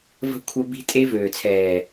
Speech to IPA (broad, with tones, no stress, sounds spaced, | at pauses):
v ə̤˦ kʷʰ œ˦ b i̤˦ tʼ e˦ v øː˨ t͡sʰ ɛː˨